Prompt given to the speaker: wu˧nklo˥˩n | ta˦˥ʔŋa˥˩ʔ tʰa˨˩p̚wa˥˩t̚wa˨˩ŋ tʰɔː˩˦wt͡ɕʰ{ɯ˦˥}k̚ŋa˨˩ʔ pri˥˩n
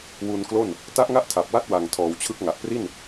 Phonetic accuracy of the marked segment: correct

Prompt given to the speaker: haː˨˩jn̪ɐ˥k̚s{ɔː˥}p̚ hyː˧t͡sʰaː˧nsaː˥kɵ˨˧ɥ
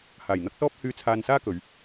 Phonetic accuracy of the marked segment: correct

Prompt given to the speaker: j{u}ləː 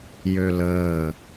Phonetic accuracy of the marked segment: incorrect: ø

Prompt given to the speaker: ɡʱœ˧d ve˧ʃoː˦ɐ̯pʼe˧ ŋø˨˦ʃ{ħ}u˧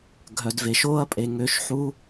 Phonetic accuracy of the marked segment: correct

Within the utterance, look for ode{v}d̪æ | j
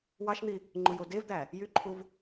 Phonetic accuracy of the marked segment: correct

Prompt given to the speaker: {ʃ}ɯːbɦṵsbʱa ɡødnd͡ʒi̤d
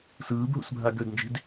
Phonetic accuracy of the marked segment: incorrect: s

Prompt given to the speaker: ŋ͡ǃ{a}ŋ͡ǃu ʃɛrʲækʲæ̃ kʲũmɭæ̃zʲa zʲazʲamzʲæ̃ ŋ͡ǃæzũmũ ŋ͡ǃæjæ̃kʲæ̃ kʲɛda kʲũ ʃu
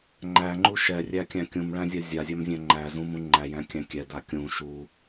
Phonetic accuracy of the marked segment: incorrect: æ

